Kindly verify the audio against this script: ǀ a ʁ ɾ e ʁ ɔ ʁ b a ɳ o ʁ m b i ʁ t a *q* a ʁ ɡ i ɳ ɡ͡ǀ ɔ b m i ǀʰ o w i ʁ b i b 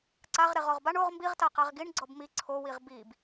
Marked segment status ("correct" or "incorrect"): correct